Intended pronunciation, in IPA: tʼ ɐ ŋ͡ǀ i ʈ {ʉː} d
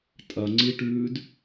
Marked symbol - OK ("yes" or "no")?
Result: yes